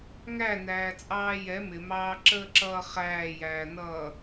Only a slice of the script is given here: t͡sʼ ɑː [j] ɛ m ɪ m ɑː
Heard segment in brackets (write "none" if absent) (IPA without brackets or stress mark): j